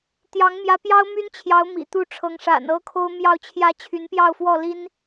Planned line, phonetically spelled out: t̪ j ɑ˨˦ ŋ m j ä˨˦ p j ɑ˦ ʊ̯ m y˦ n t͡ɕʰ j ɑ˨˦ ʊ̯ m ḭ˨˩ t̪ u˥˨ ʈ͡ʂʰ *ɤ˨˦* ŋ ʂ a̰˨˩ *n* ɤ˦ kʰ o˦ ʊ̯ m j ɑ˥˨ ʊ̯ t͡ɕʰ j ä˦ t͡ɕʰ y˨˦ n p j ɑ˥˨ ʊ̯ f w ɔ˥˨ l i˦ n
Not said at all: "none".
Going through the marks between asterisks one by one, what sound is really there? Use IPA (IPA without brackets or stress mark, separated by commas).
ɤ˨˦, n